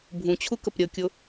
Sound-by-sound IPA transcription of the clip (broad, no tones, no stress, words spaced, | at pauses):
bʱũt͡ɕʰukəp ɾʲəkʲʊ